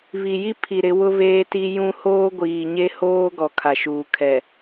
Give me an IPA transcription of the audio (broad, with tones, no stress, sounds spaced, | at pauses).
β i˨ j i˦ pʰ i˨ ɾ ɪ˨˦ w ʊ˦ β eː˦ t i˦ j ũ˦ h oː˦ ɡʷ iː˨ ɲ e˦ h oː˦ ɡ ɔ˨ kʰ a˨ ʃ uː˨ kʰ ɛ˨